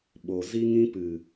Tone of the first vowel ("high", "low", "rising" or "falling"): low